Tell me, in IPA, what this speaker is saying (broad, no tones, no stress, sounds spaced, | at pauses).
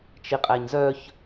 t͡ʃ i qʼ æ ɲ z œ ç